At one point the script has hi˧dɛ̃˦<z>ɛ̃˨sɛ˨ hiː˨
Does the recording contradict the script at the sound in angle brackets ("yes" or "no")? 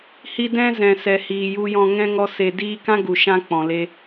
no